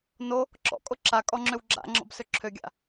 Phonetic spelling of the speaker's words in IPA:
n o | ǁ ɔ̰ kʼ o ǁ a kʼ ɔ ŋ͡ǁ ø w ɡ͡ǁ a̰ ŋ͡ǁ ɔ̰ b s ø ǁʰ ø ɡʲ a̰

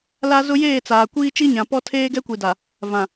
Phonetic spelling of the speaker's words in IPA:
l a˦ z ʊ˦ j eː˦˨ t͡s aː˨ kʷ iː˦ t͡ʃ i˦ ɲ ã˨ p ɔ˦ tʰ eː˦ ɡ ɛ˦ kʷ i˨ d a˨ | v ã˨

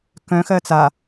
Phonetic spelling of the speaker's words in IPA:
k œ̃ x ɜ t͡s a

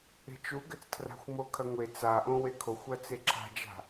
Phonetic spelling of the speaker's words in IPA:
e̤ t͡ʃ u ɡ ɘ t͡s tʰ r a̤ xʷ m o kʰ ɐ ŋʷ e t͡s a ʔ õ w e kʰ o xʷ ɐ t͡s e ǁʰ a̤ d͡ʒ a̤

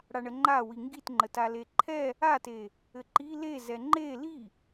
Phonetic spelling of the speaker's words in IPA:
ɽ a ɳ ə ŋ͡ǃ a w i ŋ ɡ i t ŋ͡ǃ ə t a l e ǃʰ ɛ | a t e | ɘ ǃ i l e z ɛ ŋ͡ǃ e l i

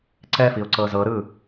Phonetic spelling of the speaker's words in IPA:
ǀ ɛ f i ʊ̯ ǀ ɤ z ɤ ɾ ɯ

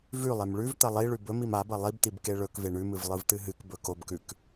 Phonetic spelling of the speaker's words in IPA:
v ʉ lˠ e m ɭ ʉ v t̪ ɐ lˠ i ɭ ʉ b ɵ m i m a b ɐ lˠ i b t̪ i b k e ɭ ɵ k v e ɳ ʉ m ɨ v lˠ ɨ v t̪ ɨ ɦ ɨ k b ɵ k o b k ʉ k

